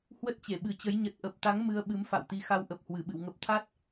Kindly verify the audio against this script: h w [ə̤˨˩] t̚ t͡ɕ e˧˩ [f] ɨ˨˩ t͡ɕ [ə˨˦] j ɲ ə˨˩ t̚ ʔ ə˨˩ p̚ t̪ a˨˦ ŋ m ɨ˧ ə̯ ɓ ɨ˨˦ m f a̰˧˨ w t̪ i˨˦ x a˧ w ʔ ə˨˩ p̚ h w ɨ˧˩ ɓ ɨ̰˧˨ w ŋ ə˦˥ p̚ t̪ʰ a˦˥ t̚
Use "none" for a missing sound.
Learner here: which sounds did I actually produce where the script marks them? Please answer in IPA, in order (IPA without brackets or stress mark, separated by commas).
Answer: ə˦˥, ɓ, ə˨˦